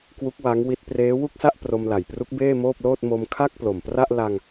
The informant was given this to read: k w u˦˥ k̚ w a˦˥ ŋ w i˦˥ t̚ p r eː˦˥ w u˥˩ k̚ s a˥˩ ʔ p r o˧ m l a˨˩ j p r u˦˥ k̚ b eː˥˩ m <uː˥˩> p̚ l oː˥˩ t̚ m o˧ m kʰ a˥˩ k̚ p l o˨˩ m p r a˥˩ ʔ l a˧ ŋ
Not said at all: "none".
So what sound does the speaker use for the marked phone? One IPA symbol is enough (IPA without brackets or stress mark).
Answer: oː˥˩